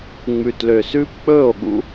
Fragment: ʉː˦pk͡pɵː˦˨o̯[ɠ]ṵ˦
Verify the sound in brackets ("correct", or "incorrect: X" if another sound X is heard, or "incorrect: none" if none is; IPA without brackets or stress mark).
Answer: correct